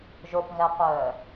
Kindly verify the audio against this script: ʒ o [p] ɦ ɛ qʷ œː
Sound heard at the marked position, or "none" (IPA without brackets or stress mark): p